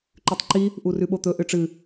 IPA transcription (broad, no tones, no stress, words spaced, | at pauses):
ǃʉtˤǃi | ʔurʉɓot̪ɵ ʔɨʈ͡ʂɨ